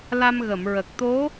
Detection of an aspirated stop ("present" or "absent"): absent